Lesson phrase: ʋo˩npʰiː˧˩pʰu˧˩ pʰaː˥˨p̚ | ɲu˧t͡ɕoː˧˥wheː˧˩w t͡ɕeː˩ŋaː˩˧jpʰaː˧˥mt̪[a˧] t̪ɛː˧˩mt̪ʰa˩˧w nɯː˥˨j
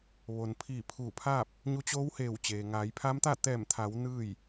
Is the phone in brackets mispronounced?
yes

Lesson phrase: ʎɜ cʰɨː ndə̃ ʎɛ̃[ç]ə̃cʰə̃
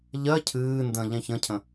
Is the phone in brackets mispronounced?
no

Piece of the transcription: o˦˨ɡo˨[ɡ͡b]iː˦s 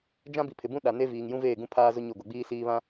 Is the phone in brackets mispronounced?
no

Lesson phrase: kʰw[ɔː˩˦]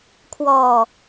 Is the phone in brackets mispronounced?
yes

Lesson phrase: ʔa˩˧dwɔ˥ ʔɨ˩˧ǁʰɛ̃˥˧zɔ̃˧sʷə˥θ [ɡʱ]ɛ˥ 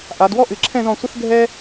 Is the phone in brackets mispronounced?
no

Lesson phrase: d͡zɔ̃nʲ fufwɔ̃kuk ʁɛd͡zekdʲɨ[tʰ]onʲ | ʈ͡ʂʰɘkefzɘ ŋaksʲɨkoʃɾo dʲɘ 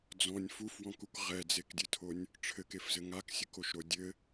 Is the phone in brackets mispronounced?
no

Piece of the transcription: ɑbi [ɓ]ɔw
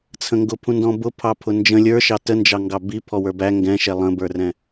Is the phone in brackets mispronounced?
yes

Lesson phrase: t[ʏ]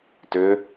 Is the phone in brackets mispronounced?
no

